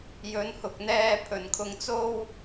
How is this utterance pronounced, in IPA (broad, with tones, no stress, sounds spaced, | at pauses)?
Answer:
j ɵ˨˧ n h ʊ˨ k̚ n̪ ɛː˧ pʰ ɵ˨ n kʰ ʊ˧ ŋ t͡s o˥ w